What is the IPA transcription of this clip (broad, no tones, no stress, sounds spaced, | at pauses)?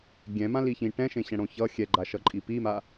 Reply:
ɡʲ ɛ̃ m ã l i ç ĩ ʈ ɛ̃ ʃ ẽ ɕ ɛ̃ ɽ õ ç ʌ xʲ ɛ ɡ͡ǃ a ʃ ʌ ǃʼ i p i m a